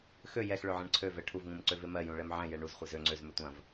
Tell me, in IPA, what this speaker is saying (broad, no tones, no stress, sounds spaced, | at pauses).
x ø j ɛ x ɭ ø ʕ ɛ̃ ɳ ǀʰ ø v ɛ ʈʰ u v ŋ ũ m ǀ ø v e m ɜ j ũ ɭ ɛ m ʕ ɛ̃ j ɛ ɳ u z χʷ e z ø ŋ͡ǀ ø z m ø tʷ ɐ̃ v